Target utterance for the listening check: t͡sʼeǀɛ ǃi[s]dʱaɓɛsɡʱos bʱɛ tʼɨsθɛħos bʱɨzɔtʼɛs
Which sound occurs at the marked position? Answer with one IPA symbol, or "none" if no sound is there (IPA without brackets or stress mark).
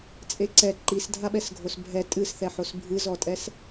s